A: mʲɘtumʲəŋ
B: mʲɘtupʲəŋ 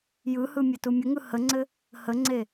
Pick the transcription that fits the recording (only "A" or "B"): A